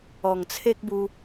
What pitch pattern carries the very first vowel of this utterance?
low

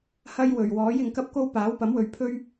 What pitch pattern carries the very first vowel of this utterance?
high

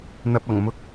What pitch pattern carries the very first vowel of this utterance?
low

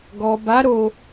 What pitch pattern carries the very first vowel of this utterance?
low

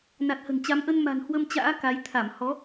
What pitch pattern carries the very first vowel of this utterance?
low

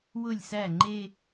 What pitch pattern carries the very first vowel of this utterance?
falling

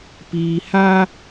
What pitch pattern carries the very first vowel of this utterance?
low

